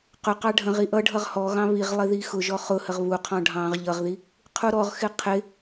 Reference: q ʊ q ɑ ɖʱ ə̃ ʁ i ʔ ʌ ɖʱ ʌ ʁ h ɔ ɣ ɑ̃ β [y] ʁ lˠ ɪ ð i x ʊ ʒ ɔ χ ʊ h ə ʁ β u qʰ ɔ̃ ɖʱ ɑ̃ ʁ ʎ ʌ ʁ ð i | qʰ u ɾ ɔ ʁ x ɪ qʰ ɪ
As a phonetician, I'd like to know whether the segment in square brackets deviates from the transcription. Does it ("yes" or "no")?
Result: yes